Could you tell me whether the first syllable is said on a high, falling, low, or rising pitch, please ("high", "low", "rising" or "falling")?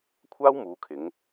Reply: high